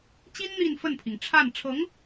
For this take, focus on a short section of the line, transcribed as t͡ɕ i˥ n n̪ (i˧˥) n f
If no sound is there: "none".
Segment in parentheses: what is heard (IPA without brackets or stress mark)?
i˥˧